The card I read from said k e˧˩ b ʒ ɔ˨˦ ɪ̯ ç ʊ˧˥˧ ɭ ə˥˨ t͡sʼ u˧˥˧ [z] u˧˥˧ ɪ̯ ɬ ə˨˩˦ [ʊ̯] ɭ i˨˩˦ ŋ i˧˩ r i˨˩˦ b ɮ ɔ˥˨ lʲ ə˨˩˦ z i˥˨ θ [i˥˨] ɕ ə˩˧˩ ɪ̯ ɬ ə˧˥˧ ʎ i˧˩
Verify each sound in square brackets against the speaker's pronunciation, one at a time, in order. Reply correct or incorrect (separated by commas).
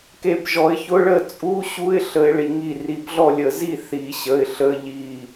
incorrect, incorrect, incorrect